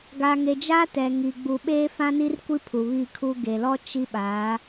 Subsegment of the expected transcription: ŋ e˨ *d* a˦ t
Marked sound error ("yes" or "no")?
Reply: yes